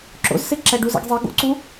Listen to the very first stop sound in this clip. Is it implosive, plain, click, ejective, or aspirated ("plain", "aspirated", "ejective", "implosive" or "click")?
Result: click